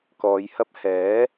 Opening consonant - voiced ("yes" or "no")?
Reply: no